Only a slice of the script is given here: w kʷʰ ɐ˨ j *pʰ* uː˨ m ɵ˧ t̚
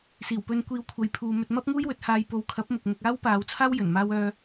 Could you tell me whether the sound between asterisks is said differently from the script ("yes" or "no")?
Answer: no